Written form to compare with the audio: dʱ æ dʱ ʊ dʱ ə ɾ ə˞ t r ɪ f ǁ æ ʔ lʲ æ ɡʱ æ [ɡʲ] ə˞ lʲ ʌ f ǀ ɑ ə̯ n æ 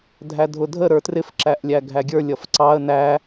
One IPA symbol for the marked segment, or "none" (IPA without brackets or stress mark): ɡʲ